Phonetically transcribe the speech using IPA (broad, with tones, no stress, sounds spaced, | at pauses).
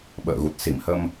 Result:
ɓ ə̰ː˧˨ ɣ u˨˩ t̚ s i˧˩ m h ə˧ m